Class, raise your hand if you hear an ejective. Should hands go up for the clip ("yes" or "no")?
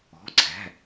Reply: no